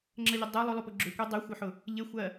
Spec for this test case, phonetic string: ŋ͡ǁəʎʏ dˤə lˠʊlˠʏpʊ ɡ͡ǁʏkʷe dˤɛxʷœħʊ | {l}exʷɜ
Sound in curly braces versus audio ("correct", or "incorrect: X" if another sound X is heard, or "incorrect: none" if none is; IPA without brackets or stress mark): incorrect: ʎ